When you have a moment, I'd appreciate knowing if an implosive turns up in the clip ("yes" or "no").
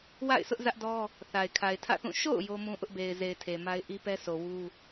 no